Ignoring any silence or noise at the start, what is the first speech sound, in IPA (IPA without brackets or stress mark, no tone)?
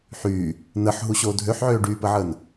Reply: ħ